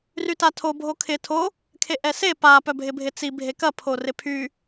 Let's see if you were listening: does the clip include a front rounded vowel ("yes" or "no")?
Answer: yes